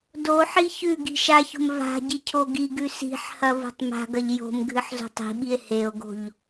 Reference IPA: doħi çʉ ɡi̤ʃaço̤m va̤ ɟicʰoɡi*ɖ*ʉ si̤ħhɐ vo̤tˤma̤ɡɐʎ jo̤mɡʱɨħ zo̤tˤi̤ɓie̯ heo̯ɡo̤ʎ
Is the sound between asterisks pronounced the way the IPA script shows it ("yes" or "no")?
no